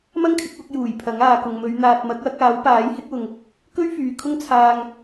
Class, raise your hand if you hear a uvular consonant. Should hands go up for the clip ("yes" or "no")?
no